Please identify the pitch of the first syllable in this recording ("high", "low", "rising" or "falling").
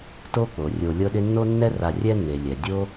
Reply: high